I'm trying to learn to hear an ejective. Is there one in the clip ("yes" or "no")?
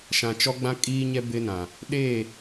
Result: yes